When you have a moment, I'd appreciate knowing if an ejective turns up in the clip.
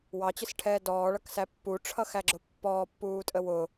yes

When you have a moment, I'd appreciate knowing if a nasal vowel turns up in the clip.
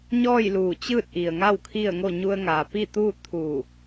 no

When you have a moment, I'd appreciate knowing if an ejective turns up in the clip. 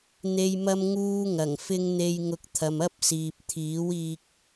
no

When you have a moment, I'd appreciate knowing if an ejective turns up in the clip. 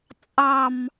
yes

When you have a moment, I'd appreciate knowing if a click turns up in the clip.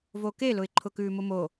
yes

